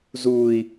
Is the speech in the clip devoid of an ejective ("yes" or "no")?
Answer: yes